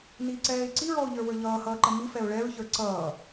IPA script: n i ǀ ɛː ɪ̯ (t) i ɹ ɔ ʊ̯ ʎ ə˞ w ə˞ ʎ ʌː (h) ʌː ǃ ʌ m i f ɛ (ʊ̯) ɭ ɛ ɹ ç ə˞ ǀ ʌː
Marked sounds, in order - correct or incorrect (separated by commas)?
incorrect, correct, correct